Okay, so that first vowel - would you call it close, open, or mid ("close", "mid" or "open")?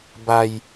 open